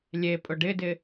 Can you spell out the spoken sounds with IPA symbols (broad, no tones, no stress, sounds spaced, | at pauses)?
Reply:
lʲ e pʼ ʊ ɖ ɪ d ɪ